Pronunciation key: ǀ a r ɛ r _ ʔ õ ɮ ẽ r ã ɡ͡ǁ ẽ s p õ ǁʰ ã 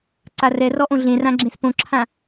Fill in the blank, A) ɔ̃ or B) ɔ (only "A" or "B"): B